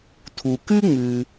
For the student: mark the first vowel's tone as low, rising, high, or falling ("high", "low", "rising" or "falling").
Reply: low